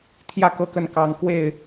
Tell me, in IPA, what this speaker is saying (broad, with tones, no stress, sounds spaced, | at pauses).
t̪ʰ j ä˥˨ k ɤ˥˨ k ə˥˨ n k ɑ˦ ŋ k w e˥˨ ɪ̯